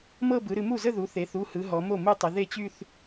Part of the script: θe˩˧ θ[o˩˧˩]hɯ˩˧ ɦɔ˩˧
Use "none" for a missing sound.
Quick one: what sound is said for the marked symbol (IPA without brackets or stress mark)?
u˩˧˩